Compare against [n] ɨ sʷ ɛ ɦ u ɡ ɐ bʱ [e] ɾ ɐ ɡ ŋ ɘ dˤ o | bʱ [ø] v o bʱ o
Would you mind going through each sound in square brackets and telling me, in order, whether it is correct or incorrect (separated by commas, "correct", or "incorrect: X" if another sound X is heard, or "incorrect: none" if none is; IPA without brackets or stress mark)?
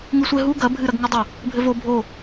incorrect: ŋ, incorrect: ɨ, incorrect: ɘ